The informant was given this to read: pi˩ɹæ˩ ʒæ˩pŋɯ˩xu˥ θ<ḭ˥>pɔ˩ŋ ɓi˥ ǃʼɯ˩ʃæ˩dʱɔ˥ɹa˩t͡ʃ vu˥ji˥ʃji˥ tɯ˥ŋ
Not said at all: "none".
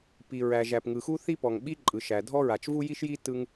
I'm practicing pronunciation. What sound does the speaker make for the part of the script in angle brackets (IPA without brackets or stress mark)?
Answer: i˥